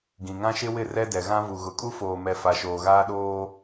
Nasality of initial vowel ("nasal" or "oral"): nasal